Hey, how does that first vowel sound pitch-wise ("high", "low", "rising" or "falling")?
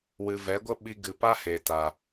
low